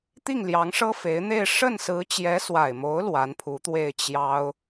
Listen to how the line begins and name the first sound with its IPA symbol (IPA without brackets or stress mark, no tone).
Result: t̪